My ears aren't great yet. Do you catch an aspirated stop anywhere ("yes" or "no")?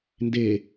no